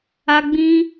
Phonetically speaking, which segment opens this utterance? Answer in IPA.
a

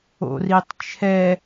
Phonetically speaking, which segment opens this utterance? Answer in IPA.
o̰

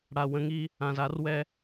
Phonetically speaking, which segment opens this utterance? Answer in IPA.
ɽ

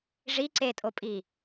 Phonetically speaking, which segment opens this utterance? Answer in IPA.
ʐ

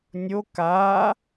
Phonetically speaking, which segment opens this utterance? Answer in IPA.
nʲ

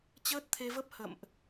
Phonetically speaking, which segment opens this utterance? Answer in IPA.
t͡ɕ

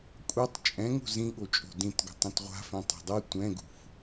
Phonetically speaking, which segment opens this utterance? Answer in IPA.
kʷʼ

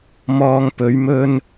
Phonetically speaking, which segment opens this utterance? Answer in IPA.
m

